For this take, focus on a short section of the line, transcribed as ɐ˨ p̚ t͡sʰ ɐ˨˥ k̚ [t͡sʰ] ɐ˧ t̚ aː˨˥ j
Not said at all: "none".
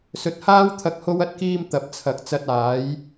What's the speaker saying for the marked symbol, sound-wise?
t͡s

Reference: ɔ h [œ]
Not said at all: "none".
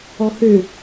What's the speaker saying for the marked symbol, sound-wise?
ø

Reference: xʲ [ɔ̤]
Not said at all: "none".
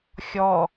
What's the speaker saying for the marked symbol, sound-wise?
ɔ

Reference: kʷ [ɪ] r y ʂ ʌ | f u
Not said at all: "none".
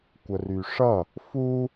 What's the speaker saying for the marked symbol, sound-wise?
ə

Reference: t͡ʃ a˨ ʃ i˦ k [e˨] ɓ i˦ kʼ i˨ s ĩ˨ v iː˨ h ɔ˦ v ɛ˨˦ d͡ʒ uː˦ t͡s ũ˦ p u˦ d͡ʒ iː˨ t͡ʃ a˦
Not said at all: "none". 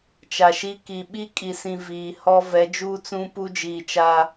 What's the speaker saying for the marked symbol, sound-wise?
i˨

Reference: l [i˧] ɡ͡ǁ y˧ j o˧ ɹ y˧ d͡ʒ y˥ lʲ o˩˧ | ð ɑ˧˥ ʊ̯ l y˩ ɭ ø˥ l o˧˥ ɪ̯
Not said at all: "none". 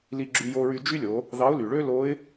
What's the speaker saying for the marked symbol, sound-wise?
i˧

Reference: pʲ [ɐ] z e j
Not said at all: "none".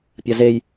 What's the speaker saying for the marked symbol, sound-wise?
ɐ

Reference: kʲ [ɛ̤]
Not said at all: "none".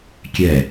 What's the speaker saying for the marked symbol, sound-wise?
ɛ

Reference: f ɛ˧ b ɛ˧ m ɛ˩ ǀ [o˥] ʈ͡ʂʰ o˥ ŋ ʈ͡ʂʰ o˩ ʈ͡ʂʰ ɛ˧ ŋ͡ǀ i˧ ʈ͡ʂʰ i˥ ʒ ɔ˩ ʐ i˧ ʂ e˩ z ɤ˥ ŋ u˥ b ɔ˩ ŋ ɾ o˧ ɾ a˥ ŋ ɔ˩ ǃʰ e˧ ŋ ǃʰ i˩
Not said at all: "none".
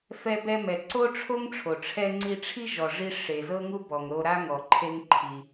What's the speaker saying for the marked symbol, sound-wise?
o˥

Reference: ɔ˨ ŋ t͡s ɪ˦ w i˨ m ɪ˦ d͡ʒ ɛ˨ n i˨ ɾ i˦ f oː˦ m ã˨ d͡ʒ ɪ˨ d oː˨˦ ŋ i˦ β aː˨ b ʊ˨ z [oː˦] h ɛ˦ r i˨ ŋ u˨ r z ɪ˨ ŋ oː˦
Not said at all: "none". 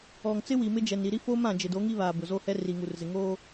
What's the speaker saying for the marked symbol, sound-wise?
o˦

